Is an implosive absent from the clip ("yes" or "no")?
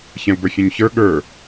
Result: no